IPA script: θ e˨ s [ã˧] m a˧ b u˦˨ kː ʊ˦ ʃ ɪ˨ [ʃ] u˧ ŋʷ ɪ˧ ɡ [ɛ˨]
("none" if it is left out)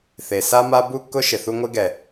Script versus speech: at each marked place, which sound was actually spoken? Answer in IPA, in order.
a˧, θ, ɛ˨

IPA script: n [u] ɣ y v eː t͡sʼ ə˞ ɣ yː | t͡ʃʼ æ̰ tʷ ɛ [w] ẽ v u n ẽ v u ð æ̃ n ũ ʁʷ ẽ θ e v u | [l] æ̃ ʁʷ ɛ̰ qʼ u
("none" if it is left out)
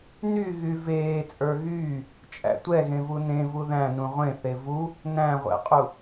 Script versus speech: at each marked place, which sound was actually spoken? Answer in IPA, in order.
y, ɣ, n

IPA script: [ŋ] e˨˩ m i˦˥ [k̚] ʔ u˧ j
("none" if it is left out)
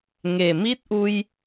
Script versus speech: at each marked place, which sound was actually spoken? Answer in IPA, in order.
ŋ, t̚

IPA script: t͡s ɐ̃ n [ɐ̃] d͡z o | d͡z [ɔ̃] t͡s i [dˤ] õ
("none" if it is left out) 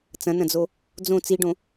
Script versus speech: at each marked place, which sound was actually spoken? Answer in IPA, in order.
ɐ̃, õ, ɖ

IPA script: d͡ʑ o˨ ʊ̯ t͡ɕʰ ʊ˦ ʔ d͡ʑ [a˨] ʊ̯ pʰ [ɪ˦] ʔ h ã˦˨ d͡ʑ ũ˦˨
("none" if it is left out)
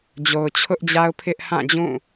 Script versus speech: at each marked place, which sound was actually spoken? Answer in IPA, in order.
a˦, ɪ˦

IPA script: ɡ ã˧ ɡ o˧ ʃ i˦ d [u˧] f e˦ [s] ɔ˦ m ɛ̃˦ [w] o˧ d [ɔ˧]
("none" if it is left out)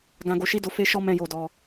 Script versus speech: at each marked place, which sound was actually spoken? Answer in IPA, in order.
o˧, ʃ, j, ɔ˧

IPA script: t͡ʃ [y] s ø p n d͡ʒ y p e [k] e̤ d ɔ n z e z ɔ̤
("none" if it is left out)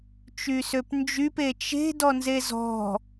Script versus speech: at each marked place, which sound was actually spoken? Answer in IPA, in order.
y, t͡ʃ

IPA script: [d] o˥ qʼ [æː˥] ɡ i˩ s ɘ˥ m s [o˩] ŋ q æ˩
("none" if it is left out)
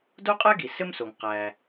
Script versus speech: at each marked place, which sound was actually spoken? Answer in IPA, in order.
d, æ˥, o˩

